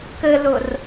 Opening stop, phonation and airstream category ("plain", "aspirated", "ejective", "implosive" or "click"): plain